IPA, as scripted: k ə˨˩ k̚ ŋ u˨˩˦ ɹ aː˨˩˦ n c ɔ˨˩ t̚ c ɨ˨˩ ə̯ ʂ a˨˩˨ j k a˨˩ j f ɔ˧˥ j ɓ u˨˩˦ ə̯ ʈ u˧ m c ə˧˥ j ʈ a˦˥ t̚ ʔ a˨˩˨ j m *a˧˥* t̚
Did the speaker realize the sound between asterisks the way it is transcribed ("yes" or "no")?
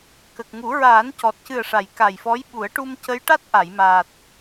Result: no